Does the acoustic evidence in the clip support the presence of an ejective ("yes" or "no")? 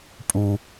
yes